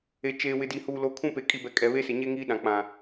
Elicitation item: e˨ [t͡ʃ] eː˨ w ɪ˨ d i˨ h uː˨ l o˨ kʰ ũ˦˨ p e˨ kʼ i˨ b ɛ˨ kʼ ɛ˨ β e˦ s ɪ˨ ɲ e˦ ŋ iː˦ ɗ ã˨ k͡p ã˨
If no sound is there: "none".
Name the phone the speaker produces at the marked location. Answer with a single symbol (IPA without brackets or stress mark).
t͡ʃ